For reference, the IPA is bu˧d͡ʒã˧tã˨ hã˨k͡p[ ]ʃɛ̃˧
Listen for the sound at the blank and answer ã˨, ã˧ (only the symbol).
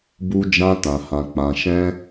ã˨